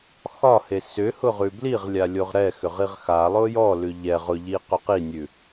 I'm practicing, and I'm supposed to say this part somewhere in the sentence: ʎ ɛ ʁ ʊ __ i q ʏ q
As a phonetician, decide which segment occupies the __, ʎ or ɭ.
ʎ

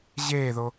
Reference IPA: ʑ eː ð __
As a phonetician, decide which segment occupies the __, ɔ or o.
o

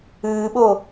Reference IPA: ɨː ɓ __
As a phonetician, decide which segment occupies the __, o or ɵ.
o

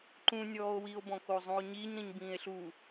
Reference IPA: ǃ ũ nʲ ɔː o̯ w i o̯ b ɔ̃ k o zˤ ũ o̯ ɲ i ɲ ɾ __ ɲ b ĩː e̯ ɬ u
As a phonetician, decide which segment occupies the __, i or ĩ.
ĩ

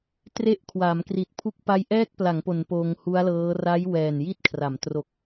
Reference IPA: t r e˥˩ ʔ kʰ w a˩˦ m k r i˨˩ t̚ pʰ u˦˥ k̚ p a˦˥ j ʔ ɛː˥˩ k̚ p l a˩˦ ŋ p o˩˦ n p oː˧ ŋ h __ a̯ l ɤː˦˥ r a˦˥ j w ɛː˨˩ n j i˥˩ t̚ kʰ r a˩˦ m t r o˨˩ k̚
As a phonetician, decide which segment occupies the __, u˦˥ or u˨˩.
u˦˥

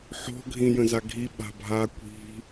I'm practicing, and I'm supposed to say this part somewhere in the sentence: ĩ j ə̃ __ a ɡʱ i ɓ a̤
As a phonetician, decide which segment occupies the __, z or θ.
z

